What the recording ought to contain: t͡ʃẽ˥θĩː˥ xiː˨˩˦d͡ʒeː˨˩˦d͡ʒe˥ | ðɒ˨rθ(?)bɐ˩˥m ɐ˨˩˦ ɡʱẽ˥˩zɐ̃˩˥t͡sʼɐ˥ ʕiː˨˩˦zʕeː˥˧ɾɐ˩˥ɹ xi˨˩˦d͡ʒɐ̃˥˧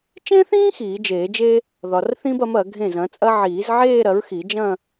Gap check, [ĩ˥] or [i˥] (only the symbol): ĩ˥